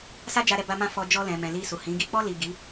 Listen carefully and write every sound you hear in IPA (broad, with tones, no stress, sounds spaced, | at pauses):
s a˦ d͡ʒ a˧ ɾ ɛ˧ b a˧ m ã˧ f ɔ˧ d͡ʒ ɔ˧ l ɛ̃˨ m ɛ̃˨ l i˧ s u˨ h ĩ˨˦ ɡ i˧ k͡p ɔ˧ l i˨ ɡ i˨˦